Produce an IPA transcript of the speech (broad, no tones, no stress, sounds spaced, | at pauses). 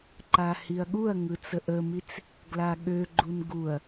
ǃ a h i ɐ̯ ɠ u ɐ̯ ŋ ɯ t͡s ə ʔ ə m i t͡s | ɡ l a ɠ ø ɡ͡ǃ u n ɡ u ɐ̯